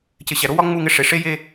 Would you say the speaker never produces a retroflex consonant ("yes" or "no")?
no